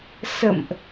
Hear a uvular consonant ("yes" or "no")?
no